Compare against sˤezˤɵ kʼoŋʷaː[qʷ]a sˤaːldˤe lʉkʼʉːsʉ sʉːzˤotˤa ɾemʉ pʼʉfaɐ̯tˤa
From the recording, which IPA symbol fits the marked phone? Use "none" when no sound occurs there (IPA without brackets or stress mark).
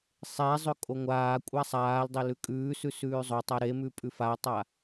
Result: kʷʼ